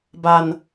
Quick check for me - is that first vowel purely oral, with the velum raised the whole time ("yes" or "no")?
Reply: yes